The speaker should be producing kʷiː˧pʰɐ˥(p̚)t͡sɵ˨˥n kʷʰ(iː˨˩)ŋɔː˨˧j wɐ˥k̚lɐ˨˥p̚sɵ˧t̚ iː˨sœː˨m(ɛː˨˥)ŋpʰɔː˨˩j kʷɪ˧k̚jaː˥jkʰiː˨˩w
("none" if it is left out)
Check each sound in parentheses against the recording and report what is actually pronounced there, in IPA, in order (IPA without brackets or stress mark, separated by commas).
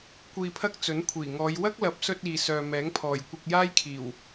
k̚, iː˨˩, ɛː˨˥